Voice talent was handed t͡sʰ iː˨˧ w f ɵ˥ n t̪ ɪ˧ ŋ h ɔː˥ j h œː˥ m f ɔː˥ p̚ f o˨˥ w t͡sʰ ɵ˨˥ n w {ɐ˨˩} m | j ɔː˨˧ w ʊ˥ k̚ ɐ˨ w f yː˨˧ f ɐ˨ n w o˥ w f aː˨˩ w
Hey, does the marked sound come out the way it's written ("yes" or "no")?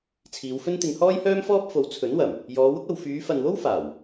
yes